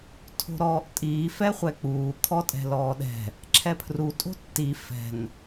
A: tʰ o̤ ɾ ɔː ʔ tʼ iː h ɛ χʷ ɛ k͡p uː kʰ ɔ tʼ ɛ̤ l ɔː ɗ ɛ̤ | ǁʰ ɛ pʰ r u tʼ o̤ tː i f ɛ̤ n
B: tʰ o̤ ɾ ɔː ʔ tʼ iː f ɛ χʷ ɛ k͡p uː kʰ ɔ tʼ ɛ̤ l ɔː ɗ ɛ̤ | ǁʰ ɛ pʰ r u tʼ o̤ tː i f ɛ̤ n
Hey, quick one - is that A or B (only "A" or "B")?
B